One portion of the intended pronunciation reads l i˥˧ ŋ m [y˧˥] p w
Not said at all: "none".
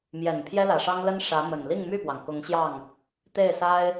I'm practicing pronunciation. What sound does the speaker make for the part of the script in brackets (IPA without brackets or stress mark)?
y˥˩